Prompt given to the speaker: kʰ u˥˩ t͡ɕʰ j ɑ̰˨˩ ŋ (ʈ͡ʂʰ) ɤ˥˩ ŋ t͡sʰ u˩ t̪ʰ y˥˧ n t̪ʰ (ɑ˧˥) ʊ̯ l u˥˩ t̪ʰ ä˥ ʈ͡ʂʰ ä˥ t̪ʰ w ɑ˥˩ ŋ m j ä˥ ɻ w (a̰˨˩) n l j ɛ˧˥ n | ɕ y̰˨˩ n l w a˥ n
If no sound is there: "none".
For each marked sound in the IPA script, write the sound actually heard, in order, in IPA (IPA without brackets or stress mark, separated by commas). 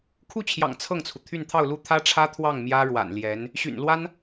t͡sʰ, ɑ˥˧, a̰˨˩